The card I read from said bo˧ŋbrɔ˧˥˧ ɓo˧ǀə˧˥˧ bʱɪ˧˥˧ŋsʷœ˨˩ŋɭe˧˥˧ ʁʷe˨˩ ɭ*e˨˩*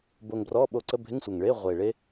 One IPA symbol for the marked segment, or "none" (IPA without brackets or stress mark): e˦˥